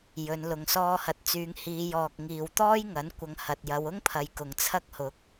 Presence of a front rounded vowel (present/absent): present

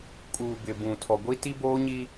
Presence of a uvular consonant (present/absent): absent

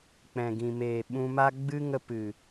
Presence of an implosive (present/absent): present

